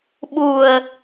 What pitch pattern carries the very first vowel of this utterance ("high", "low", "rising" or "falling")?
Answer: low